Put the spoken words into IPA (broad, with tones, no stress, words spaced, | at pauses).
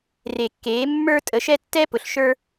re˨˩˦kːeː˨˦ mːə˞˦ tʼə˨˦ʃɛ˦tːɛ˦pʊ˨ɬ ʃə˞˦